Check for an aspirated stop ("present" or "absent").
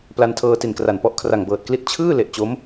present